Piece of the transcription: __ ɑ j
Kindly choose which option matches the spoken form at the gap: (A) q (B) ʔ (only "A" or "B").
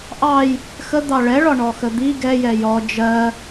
B